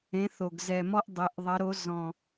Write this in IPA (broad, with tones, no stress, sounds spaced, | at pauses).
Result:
ẽ˨˥ θ o˨˩ ɡ z ɛ˨˩ m ɔ˥ ʔ dˤ e˩˧ ʔ ðˤ ɐ˨˥ ɾ o˨˥ z ɔ̃˨˩